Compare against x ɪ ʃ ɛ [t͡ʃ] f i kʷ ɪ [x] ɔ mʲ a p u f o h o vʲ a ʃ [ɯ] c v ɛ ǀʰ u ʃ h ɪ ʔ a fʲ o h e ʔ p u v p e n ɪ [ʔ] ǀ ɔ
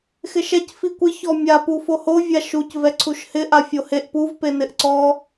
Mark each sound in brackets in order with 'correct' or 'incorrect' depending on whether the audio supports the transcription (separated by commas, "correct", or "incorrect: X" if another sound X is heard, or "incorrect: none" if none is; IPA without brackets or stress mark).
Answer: incorrect: c, incorrect: ç, incorrect: u, correct